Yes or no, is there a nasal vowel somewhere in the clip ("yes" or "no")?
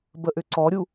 no